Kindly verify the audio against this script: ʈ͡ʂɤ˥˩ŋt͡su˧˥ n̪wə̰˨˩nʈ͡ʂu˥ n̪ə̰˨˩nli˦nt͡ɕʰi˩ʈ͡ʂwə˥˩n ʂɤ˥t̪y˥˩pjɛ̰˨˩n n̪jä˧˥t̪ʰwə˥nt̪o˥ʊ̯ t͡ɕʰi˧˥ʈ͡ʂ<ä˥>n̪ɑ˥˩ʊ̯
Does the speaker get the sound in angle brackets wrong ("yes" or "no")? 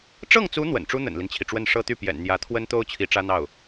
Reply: no